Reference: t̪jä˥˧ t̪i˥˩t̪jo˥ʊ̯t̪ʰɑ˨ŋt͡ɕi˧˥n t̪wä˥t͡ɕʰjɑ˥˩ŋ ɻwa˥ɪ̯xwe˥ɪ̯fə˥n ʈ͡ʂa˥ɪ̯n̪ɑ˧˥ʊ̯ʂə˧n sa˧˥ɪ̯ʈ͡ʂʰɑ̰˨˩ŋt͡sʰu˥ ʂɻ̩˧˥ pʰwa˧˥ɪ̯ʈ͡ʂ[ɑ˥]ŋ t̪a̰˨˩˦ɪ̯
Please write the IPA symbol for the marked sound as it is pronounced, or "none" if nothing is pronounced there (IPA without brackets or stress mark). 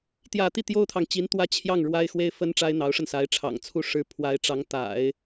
ɑ˧˥